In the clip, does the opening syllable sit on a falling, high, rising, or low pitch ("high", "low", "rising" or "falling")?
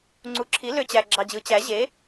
rising